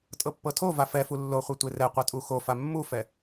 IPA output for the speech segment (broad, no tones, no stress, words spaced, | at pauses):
tʼɤpːɤtʰova fɛfu lːoχʷɛ tʷerɛqʷɤ tʼuxofa mːufɛ